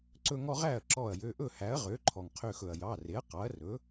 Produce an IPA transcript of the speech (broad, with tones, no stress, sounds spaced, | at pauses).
ǀ ɵ˦ ŋ ɔ˦ ʁ æ˥˩ ɐ̯ ǁ ɔ˧˩ ɐ̯ j ø˩˧˩ ʔ ɵ˥˩ h æ˩˥ ɐ̯ ʁ ø˩˥ ǃʰ ɔ˩ ŋ qʰ ø˧˩ x ɵ˩ ɐ̯ j ɑ˩˧˩ r e˩˥ ɐ̯ q ɑ˩˥ ɐ̯ r ɵ˩˥